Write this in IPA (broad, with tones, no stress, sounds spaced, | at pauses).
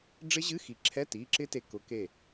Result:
ɖ͡ʐ ɪ˦˥ ʑ ɨ˧˥˧ x i˨˦ ǁʰ ɛ˧˥˧ t iː˩˧˩ ǁ ɪ˦˥ t e˧˩ k ʊ˨˦ k e˧˩